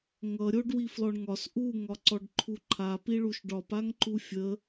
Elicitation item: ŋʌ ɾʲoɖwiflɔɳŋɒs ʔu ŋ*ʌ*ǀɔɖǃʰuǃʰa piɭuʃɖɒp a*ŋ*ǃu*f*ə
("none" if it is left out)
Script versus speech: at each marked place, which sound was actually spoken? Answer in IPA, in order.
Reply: ɒ, ŋ, fʲ

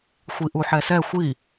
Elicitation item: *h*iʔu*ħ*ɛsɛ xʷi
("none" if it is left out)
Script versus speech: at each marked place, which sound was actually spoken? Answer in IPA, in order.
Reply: xʷ, ħ

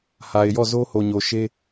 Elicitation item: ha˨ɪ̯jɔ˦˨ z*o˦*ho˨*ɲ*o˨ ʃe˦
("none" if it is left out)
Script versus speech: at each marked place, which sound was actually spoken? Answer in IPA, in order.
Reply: o˦, ɲ

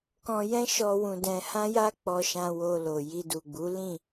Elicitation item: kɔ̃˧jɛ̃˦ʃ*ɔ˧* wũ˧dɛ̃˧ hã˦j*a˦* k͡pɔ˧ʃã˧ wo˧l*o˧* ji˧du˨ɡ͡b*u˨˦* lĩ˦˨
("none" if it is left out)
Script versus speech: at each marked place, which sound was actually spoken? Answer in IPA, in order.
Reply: ɔ˧, a˦, o˨, u˨˦

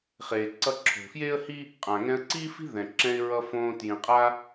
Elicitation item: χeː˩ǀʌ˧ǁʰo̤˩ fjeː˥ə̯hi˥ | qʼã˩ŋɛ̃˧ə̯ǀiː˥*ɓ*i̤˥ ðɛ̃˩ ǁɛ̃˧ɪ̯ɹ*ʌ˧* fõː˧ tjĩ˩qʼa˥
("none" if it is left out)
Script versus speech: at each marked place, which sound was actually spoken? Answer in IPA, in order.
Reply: f, ʌ˧

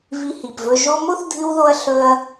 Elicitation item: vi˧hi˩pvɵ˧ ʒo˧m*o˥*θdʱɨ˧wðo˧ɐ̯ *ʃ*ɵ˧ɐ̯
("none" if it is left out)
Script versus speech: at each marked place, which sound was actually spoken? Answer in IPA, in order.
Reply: o˥, ɬ

